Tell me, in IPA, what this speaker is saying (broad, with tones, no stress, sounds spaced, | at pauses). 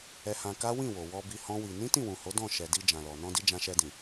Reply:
ɛ˧ h ã˧ k a˦ w ĩ˦˨ w o˨ w ɔ˧ b i˧ h ɔ̃˦ w i˧ n ĩ˦ t ĩ˦˨ w ũ˨ h o˨˦ d ɔ̃˦˨ ʃ ɛ˨ d i˧ d͡ʒ ã˨ l ɔ˨ n ɔ̃˧ d i˧ d͡ʒ ã˧ ʃ ɛ˧ d ĩ˨